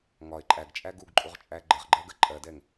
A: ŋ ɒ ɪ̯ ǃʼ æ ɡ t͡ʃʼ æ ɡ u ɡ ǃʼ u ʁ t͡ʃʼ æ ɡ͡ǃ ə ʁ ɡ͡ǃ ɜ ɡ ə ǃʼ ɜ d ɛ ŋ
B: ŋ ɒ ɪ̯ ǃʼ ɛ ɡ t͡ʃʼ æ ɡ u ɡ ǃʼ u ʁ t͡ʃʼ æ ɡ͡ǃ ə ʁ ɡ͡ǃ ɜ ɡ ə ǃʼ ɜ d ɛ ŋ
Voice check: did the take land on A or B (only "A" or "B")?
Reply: A